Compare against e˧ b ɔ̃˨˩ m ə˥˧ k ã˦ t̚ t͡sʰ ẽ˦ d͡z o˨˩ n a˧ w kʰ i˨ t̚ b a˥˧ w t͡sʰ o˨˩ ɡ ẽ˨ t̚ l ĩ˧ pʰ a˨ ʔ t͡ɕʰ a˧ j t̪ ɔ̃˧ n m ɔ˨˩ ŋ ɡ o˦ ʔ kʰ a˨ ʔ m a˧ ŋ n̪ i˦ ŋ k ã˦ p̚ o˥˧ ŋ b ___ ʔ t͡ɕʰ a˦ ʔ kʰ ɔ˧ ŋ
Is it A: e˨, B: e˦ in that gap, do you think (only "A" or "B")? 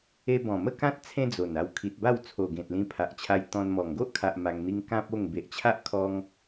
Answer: A